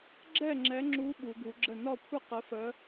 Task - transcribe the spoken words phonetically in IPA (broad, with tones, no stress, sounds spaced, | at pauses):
ɡ͡ǁ ɛ˥˨ ŋ͡ǁ ɛ˨˦ ŋ͡ǁ u˨˦ ɓ u˨˦ ɡ u˨˦ ɡ͡ǁ ə˥˨ n ɒ˥˨ kʷʰ ə˥˨ q ə˨˦ f ə˨˦